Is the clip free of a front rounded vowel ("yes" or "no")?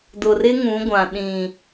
yes